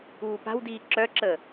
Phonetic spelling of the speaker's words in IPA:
uː p a̤ w d iː ǁ œ ǁ əː

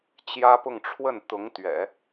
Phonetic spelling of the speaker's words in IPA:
t͡ɕ j ä˥ p ʊ˥˧ ŋ ʈ͡ʂʰ w ə˥˩ n t̪ ʊ˧˥ ŋ t̪ ɥ ɛ̰˨˩˦

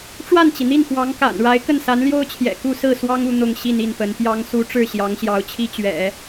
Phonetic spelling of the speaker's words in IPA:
ʈ͡ʂ w a˥˩ n t͡ɕ i˩ n̪ i˥˩ n x w ɑ˧˥ ŋ k a̰˨˩ n ɻ a˧˥ ɪ̯ k ə˥˩ n s a˧˥ n l j o˥ ʊ̯ t͡ɕʰ j ɛ̰˨˩ k u˥˧ s ɹ̩˥˩ s w ɑ˥ ŋ u˥˧ n̪ ʊ˥˧ ŋ ɕ i˥˧ n i˥˩ n p ə˧˥ n p j ɑ˧˥ ŋ s u˧˥ ʈ͡ʂ ɻ̩˥˩ ɕ j ɑ˧˥ ŋ ɕ j ɑ˧˥ ʊ̯ t͡ɕʰ i˥ t͡ɕ ɥ ɛ̰˨˩˦

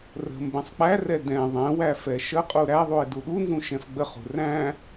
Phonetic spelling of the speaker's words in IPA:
r ə̤ m b ɛ̃ sˤ k͡p æ r ɛ d ɛ̃ ðˤ ɛ̃ w æ f ɛ ʃ ə qʼ u ɾ æ ðˤ u ɪ̯ d u ɗ u n z ũ ʃ ɛ̃ f ɡ͡b ə χ ṳ r æ̃

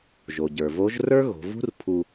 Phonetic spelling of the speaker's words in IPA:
ʒ o˩ ɟ ə˞˩ v o˧˥ ʒ r ə˞˥ ɣ o̤˩˧ v ṳ˥ r pʰ u˧

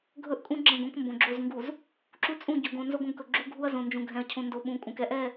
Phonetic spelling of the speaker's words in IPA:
ɡʱ ɵ˦ ʔ kʼ ũ˦ ɡ͡ǁ ɛ̃˦˨ ɡ õ˦ k m b õ˨ ɡ͡ǁ o˦˨ z ŋ ɡ u˨ z | ǁ u˦ t͡sʼ ũ˦˨ ɟ ɵ˨ ɡ õ˨ n z o˦ ɡ õ˦ ɡ k ɵ˨ ɡ͡ǁ u˦ ɡʱ u˦ ɐ̯ z õ˨ n d͡ʒ ũ˨ ɡʱ ɛ̃˨ ɐ̯ cʰ õ˨ n d o˨ ɓ ũ˨˦ kʼ ũ˨ k ɛ˦ ʔ ɛ˦˨

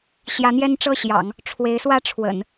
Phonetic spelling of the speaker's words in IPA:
ɕ j ä˧˥ n̪ j ɛ˥ n ʈ͡ʂ ɤ˥˩ ɕ j ɑ̰˨˩˦ ŋ | ʈ͡ʂʰ w e˧˥ ɪ̯ s w ä˥ ʈ͡ʂʰ w ə̰˨˩˦ n

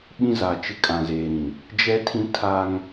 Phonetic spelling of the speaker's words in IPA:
ɓ ĩ˦ z a˨ t͡ʃ ɪ˦ kʼ ã˨ z eː˨ ɾ ĩ˨ | d͡ʒ ɛ˦ tʰ ĩ˦ tʰ a˦ ŋ

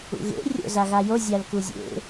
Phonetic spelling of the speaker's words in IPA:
ṵ ɣ ḛ rʲ o̰ z a ɣ a j o zʲ a l k u zʲ ḛ

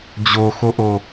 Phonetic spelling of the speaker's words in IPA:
d͡ʑ o x o ʔ o

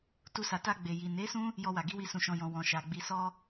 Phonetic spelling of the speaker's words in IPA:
t u˧ s a˨ t a˧ ɡ͡b e˨ j i˨ n e˨˦ s ũ˦ | j ɔ˧ w a˨ ɡ i˨˦ w i˧ s ũ˨ ʃ ɔ̃˨ j ɔ̃˨ w ɔ̃˨ ʃ a˨ ɡ͡b i˧ s ɔ˦

